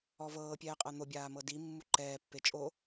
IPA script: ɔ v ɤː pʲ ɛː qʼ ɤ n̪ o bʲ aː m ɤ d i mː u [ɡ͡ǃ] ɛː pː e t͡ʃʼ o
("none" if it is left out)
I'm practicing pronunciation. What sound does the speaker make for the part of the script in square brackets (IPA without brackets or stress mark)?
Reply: ǃ